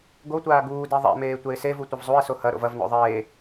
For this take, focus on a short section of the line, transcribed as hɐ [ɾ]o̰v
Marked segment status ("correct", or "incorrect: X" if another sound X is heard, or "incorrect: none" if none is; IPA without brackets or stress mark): correct